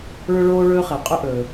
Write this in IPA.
ɭɵ˥ɭoː˥ɭɵː˥χe˩ qʼɵ˥ ʔɵ˩

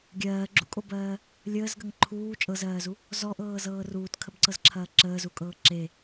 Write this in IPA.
ɡʲɜːɡ͡ǁṵkʼobɜː | lʲəːzɡəŋ ǃʰuː t͡ʃʼɤzɜːzu | zɔʔɤːzɤː ruːtkʰəbǀɤzǁʰɐː ǁəːzukʼɤː ǁe

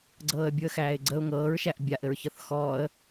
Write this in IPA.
ɡ͡ǀɤːə̯bʲuə̯xæːɪ̯ɡ͡ǀəʊ̯ ŋɤːɹʃæʔ bʲaʔɘɹçɤθ xɔːə̯

